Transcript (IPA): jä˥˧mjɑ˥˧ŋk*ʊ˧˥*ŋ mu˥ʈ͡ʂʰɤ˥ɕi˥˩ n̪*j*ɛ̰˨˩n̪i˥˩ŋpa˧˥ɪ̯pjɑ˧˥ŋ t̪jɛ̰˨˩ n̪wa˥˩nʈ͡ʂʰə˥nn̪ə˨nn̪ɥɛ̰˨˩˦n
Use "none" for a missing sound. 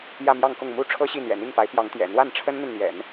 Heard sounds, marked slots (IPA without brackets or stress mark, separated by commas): ʊ˥˩, ɥ